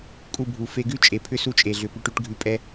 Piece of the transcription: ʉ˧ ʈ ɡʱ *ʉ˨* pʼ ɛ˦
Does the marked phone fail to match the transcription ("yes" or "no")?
yes